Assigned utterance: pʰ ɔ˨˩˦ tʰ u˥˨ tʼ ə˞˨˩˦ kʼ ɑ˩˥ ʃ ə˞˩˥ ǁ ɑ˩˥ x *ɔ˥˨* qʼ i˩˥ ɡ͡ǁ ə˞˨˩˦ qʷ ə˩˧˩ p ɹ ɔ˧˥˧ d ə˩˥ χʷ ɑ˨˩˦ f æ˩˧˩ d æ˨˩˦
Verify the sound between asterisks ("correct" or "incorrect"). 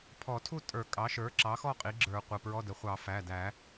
correct